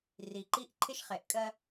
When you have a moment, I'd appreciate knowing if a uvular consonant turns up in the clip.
yes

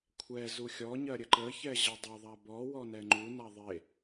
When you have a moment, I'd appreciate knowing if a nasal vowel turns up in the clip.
no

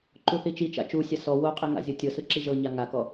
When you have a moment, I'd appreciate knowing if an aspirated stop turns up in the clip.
no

